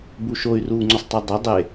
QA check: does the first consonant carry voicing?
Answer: yes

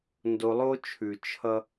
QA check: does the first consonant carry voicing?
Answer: yes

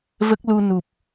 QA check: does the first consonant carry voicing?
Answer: yes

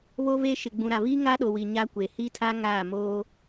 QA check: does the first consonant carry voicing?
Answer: yes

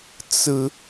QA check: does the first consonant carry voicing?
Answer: no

